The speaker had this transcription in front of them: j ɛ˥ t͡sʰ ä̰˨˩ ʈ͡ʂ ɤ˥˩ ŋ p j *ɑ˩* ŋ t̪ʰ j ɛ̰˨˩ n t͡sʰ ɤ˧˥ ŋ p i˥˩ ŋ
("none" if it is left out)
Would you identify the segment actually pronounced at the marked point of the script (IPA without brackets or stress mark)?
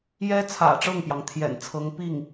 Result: ɑ˩